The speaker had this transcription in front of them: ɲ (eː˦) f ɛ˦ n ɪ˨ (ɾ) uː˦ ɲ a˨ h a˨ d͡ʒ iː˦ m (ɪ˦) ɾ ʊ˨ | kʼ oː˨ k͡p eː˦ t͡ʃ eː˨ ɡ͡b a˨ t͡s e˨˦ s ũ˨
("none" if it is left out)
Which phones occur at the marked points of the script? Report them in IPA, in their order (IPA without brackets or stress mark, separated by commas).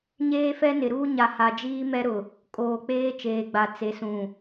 eː˦, ɾ, ɛ˦